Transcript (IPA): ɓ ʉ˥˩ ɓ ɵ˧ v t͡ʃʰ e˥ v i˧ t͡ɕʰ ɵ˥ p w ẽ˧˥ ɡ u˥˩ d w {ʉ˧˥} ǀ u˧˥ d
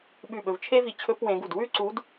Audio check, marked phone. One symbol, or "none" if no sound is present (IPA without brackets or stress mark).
ʉ˥